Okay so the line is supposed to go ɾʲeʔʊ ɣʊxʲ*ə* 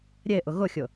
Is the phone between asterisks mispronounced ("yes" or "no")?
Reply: yes